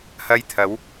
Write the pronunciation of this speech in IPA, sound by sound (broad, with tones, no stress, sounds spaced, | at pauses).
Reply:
h ɐ˧ j t̪ʰ ɐ˨˧ w